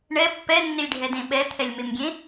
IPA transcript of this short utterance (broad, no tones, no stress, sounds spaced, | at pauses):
ɳ ɛ pː ɛ nː e lʲ ɖʱ ɛ d ẽ ɓ ɛ t̪ʰ ɛ lʲ m e m ɡʲ ẽ